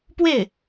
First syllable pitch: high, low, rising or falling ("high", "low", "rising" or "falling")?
falling